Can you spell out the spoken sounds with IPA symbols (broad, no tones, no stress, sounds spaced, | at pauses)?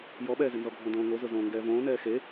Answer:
j ɔ ɓ ɛː z ɪ n z ɔ ɡʱ õ d õː ŋ o z ʊ z õː ŋ ɡ ɛː v õː n ɛː x e